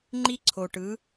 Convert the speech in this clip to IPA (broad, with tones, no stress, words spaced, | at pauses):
ŋ͡ǃi˥ǀʰo˧ʈɯ˧˥